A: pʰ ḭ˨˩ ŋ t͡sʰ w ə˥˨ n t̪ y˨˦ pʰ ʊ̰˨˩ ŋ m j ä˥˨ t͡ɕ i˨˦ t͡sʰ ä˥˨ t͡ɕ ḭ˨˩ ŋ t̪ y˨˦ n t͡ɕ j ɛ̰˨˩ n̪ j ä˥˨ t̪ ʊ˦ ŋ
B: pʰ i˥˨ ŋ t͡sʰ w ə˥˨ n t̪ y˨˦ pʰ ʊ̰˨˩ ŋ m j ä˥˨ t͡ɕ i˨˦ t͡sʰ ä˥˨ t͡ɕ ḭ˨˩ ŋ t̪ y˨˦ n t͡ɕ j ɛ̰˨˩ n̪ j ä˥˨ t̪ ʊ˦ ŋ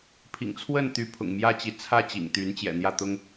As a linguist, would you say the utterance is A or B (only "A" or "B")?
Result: A